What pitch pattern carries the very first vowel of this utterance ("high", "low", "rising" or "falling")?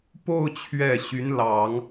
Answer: falling